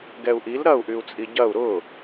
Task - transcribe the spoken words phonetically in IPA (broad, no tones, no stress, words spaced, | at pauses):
ɡɛu̯ʔil ɾɐu̯ʔyu̯t͡sʼi ɟɐu̯ ɾʊ